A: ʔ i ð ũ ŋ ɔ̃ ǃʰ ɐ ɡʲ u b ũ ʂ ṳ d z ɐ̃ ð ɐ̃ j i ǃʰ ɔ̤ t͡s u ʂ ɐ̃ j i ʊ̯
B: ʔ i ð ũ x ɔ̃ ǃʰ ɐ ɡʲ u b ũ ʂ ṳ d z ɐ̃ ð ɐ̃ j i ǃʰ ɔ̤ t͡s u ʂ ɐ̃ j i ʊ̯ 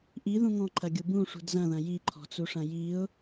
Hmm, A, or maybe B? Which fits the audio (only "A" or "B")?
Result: A